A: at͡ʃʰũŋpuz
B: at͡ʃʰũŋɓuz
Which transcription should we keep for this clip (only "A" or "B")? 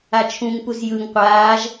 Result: A